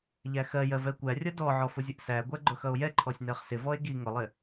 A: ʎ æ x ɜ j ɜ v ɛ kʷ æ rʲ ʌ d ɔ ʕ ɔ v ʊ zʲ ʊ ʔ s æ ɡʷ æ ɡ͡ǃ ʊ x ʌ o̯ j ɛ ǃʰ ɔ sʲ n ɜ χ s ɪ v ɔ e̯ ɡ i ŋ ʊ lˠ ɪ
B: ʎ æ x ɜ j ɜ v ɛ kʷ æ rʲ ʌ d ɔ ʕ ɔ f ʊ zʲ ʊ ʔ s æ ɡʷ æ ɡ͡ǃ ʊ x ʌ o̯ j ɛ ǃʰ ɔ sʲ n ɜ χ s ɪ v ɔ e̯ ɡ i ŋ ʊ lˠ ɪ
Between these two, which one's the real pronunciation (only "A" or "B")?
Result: B